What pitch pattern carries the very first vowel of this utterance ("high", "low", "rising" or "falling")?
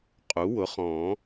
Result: rising